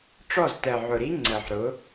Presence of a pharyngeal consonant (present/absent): present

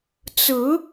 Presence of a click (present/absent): absent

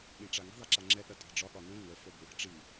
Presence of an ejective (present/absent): present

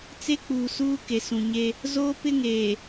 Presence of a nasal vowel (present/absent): present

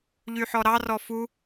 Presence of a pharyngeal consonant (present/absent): present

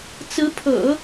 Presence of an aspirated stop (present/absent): present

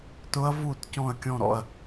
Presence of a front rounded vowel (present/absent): absent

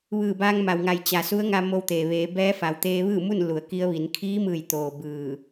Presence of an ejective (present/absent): absent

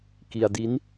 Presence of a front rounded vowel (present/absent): absent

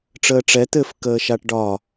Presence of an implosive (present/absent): absent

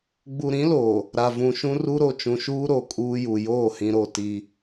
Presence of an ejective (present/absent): present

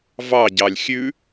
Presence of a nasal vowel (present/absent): absent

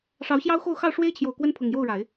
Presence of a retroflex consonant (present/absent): present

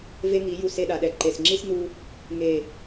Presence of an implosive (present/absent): present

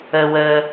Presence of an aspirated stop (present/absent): absent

